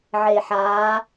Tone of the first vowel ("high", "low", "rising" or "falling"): low